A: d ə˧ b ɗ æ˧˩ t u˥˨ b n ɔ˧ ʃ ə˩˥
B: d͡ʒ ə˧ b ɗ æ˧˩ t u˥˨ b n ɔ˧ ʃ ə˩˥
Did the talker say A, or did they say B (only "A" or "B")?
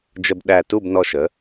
B